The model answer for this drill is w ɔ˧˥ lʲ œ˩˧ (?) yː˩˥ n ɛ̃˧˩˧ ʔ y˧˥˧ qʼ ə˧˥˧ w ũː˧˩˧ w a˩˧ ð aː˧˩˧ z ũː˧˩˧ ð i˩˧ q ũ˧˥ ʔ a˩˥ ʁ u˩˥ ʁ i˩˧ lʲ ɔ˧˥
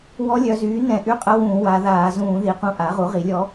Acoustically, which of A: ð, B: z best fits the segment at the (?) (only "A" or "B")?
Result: B